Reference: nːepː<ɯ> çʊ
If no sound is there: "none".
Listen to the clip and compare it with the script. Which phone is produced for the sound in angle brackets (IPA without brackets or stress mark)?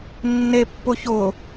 ʊ